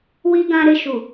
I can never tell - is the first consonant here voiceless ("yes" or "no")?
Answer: no